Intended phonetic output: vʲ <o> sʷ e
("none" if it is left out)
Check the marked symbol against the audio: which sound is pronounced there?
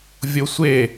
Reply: o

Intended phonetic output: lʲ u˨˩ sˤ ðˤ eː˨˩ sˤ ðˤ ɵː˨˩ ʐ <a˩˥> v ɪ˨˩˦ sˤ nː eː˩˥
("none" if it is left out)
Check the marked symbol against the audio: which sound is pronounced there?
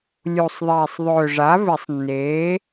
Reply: a˩˥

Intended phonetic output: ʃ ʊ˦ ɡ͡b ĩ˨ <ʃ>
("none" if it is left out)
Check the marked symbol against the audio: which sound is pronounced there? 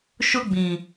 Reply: none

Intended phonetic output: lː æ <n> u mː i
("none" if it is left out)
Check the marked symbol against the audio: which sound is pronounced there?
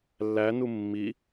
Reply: n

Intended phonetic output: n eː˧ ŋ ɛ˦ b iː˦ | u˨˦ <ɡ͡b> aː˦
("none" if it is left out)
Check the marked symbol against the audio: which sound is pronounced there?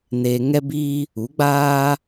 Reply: ɡ͡b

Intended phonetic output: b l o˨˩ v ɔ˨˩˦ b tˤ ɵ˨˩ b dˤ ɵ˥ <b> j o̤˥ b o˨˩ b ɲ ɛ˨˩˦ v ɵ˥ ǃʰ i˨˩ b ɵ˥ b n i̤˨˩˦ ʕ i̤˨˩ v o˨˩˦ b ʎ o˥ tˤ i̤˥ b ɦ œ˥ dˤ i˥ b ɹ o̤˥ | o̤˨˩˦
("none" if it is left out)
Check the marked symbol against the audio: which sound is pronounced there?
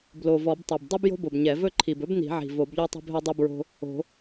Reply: b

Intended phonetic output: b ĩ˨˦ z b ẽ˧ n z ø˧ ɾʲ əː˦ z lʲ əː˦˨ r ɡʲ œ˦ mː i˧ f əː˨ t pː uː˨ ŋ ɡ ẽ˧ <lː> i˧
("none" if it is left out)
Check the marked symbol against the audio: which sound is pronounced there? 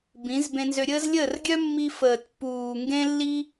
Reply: lː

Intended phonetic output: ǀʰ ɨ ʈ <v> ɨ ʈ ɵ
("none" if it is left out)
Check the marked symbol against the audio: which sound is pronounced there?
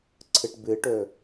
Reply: b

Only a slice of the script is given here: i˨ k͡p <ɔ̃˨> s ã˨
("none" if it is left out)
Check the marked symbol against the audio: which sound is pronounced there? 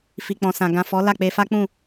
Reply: ɔ̃˨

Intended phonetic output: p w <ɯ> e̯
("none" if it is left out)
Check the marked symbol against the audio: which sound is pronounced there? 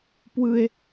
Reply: ɯ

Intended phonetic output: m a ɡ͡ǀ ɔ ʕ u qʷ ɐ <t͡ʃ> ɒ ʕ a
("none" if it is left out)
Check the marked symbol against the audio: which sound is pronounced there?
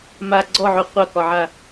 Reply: k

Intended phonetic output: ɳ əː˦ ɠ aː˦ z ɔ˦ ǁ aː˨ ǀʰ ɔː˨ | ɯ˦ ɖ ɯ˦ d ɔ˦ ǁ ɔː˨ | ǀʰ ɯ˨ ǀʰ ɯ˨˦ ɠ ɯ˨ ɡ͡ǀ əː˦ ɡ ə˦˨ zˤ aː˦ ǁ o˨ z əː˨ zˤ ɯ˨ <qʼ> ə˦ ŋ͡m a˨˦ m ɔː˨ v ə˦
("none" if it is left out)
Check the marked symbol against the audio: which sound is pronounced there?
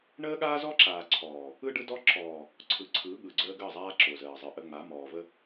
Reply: ʔ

